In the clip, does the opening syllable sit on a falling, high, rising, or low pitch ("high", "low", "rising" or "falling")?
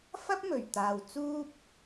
high